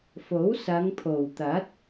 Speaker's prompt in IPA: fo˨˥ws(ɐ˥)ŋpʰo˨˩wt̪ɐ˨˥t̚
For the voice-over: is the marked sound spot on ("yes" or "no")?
no